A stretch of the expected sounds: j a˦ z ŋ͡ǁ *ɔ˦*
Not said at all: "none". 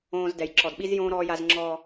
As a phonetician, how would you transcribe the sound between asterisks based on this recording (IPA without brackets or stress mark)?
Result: ɔː˦